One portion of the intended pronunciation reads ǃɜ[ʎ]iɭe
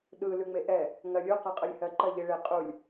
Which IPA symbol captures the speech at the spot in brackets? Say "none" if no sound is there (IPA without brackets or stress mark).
ʎ